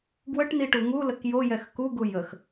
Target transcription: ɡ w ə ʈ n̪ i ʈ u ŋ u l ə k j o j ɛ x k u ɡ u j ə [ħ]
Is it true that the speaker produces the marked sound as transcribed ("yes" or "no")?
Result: no